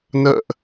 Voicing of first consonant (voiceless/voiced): voiced